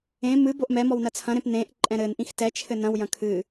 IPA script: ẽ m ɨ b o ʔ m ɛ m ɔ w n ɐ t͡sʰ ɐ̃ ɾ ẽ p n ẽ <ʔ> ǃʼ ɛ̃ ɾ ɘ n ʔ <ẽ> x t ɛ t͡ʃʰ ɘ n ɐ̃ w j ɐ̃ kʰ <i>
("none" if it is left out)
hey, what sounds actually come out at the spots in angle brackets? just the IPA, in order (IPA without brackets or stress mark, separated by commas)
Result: ʔ, ĩ, ɨ